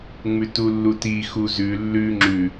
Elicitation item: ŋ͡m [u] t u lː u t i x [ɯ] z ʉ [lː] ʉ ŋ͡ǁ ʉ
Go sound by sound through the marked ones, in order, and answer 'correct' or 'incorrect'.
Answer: incorrect: ʉ, incorrect: u, correct

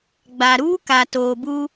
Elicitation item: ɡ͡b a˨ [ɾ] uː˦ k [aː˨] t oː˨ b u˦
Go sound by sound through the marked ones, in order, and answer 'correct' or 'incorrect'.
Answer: correct, incorrect: a˨

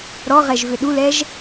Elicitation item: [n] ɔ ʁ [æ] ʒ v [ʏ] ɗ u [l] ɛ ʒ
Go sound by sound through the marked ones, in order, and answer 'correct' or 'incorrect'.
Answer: incorrect: ɾ, incorrect: ɛ, correct, correct

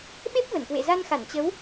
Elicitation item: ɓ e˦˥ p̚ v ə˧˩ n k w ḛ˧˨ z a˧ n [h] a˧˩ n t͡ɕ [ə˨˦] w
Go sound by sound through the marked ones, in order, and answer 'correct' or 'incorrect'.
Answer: incorrect: x, correct

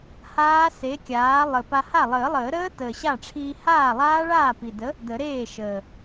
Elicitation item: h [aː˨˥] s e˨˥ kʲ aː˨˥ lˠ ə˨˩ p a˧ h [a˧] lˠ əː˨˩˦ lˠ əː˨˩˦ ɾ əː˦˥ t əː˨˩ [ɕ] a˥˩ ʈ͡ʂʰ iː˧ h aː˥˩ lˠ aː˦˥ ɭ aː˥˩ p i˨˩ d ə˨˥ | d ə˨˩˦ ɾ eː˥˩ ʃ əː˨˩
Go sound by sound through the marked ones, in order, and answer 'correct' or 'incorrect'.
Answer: incorrect: aː˦˥, incorrect: a˥˩, correct

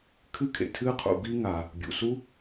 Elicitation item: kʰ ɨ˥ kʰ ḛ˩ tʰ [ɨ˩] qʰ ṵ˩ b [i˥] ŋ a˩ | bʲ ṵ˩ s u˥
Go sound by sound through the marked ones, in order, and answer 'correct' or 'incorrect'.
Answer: incorrect: ɨ˥, correct

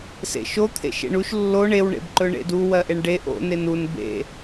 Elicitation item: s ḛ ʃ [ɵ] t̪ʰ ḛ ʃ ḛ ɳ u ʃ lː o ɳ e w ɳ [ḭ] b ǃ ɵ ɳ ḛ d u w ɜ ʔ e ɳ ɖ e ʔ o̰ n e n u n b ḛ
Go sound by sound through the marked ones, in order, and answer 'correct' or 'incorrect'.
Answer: incorrect: o, incorrect: ḛ

